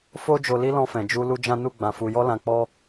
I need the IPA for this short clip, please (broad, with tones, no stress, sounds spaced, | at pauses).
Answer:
f o˦ d͡ʒ o˧ l i˦ l ɔ̃˧ f ɛ̃˨ d͡ʒ u˧ l u˦ d͡ʒ ã˦ n u˦˨ ɡ͡b ã˧ f u˧ j ɔ˦ l ã˧ k͡p ɔ˦